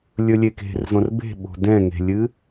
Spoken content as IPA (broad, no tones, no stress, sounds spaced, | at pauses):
lʲ ɵ lʲ e k e̤ r z õ r b e̤ ɓ o̤ d ɛ̃ ŋ e̤ lʲ ɨ